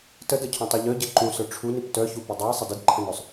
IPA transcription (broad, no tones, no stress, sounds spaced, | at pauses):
t ə d ɤ cʰ ũ tˤ u ʎ œ ɟ ɘ ǃ ũ s œ ʈ͡ʂʰ u n i p t œ ç u p ə dˤ œ j sˤ ə d ɘ d ǃʰ ə̃ n œ sˤ